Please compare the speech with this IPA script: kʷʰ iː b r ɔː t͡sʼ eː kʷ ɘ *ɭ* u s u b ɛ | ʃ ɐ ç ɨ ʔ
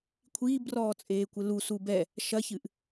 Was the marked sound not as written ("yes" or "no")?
yes